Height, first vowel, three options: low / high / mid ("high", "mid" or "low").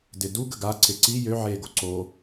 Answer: high